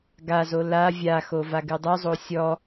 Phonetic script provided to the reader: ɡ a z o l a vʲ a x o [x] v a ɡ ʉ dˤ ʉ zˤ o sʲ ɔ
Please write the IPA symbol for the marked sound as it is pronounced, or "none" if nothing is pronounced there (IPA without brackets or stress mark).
none